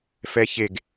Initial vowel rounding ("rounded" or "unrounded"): unrounded